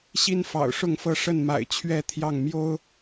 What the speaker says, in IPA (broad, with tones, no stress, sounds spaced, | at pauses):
ɕ i˦ n f ɑ̰˨˩ ʊ̯ ʂ ʊ˥˨ ŋ f ɤ˥˨ ʂ ə˥˨ n m a̰˨˩ ɪ̯ t͡ɕʰ ɥ ɛ˥˨ t̪ʰ j ɑ˥˨ ŋ m j o˦ ʊ̯